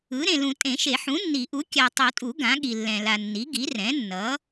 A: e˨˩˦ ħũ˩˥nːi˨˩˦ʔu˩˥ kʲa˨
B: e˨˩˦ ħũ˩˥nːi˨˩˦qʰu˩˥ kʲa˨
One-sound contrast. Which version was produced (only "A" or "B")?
A